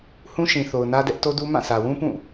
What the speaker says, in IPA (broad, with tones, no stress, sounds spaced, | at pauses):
h ũ˦ ʃ ĩ˨ θ o˨ ʊ̯ n ä˦ d ɛ˦ ʔ t o˦ d u˦ m ã˦˨ sʰ ä˨ w ũ˦ p ũ˦˨